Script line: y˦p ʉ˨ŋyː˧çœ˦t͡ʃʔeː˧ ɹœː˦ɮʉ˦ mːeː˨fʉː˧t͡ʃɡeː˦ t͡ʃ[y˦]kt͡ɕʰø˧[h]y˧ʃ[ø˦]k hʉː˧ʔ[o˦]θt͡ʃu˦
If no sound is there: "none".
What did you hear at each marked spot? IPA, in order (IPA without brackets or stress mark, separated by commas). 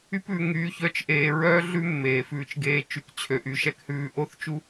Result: y˧, ʔ, ɛ˦, o˦